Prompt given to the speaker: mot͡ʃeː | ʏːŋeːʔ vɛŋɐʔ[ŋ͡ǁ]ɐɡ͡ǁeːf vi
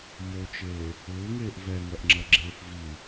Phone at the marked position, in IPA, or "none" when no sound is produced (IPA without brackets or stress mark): ŋ͡ǁ